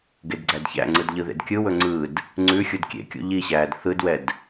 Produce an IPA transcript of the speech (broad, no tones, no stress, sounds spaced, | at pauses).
ɡ e d ɡ͡ǀ æ d ç æ̰ ŋ͡ǀ ɯ d ʎ ɯ ð ḛ d kʲ ɯ w ɵ ŋ͡ǀ ɯ d | ŋ͡ǀ ʉ xʲ u d kʲ ḛ kʲ ṵ ʎ i ɕ æː d θ ɯ d w ɛ d